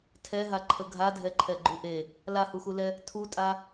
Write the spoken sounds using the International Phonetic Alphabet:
tʰɛɦaǃʰə ɡʱadʱɛǃʰɛɡ͡ǃu ʔe | lahuxulɛ | tʰutʼa

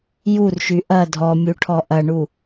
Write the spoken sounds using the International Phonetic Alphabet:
jurʃy ʔɐ dʱɔmʲuʈʰɔ ʔɐɳu

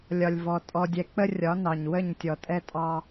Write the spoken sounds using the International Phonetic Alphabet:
lʲɒ˨lʲvɔ˨ tʼɔ˨dʲɛ˨k͡pə˦ rʲɒ˨˦nɑ˨ɲ wə˦˨ɲtʲɔ˨ tʼɛ˦tʼɑ˦

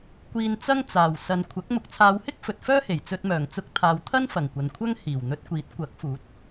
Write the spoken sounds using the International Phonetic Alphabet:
kʷiː˧nt͡sɐ˥ŋt͡saː˨˩w sɐ˨nkʷʰɐ˨˥k̚ mʊ˨k̚t͡sʰaː˨˧whɪ˥k̚ fɵ˨t̚fœː˥he˨˩j t͡sɵ˧t̚mœː˨˩ŋ t͡sʊ˧k̚t̪ʰaː˨wt̪ʰɐ˥n fɐ˨˩ŋkʷɐ˨nkʷʰɐ˥ŋ hiː˨˩wn̪ɵ˧t̚kʷiː˨˥t̚ kʷɐ˨˥k̚fuː˨˥t̚

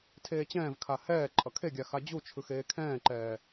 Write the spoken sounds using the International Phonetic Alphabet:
tʰeːt͡ɕɛ̃ːvkʰa hɛː ǃʼʌkʰeɡʲa xad͡ʑut͡ʃʰɯx eːkʰɛ̃ːǃɛː

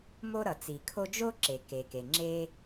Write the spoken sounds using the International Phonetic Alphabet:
mo˥ɾʌ˩t͡si˩kʰo˥ d͡ʒo˥ǁe˩ke˩ke˩ ŋ͡ǁe˥

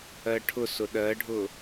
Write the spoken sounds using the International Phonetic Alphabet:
ɜʈʰʊsʊ ɗɜɖʱʊ

